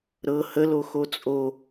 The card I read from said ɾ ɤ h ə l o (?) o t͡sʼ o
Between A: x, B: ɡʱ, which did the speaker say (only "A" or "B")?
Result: A